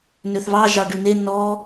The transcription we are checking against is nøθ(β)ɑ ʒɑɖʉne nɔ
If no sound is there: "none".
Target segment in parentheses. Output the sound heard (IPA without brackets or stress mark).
β